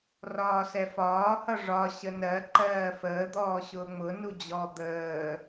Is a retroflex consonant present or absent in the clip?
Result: present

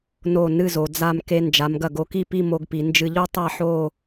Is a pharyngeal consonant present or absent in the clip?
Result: present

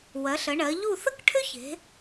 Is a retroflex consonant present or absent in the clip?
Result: present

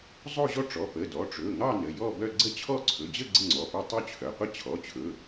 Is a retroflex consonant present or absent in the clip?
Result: present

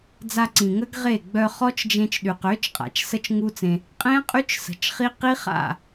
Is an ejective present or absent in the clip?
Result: present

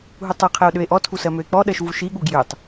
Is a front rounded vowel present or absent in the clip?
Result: present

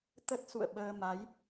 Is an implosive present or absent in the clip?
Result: present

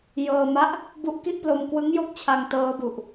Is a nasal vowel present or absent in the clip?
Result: absent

